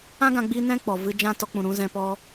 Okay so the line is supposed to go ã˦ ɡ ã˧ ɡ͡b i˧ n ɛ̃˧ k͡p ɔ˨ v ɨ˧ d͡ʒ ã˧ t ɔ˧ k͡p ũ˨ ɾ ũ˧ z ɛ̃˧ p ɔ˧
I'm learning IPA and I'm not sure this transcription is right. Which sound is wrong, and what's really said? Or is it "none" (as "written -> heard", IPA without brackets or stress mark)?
none